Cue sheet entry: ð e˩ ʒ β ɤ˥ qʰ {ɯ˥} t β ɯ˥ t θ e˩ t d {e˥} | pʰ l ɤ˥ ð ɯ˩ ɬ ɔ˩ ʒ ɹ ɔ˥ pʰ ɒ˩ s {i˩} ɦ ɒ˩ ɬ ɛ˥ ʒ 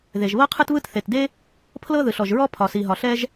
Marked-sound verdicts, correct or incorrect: correct, correct, correct

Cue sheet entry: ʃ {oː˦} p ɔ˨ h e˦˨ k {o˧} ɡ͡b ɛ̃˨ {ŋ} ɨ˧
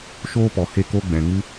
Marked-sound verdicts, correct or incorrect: correct, correct, correct

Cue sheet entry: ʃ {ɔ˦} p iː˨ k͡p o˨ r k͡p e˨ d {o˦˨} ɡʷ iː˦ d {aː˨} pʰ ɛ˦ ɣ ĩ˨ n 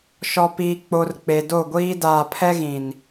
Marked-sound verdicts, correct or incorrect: incorrect: ɔ˨, correct, correct

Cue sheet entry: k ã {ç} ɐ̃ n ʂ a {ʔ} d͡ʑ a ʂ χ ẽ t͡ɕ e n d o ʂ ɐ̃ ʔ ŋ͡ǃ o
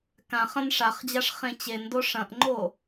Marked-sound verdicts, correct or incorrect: incorrect: χ, incorrect: χ

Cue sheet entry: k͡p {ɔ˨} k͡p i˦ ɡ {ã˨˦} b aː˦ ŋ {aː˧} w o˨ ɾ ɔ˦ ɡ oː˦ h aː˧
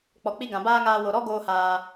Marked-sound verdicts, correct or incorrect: correct, incorrect: ã˨, correct

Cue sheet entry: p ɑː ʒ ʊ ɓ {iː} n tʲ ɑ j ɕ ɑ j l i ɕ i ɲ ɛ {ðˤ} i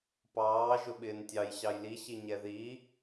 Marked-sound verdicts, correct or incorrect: incorrect: ɪː, incorrect: ð

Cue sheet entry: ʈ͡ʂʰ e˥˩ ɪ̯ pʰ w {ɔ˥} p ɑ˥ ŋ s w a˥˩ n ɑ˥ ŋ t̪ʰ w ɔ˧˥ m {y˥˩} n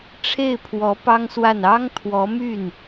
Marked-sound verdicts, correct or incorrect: incorrect: ɔ˧˥, correct

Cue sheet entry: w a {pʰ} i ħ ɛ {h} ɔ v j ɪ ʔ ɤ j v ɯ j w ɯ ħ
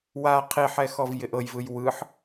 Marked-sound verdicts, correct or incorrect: incorrect: qʰ, incorrect: x

